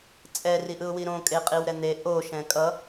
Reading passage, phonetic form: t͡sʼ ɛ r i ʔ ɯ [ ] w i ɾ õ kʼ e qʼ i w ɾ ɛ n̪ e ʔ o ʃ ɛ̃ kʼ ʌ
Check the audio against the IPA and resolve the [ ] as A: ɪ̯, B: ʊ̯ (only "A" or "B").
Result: B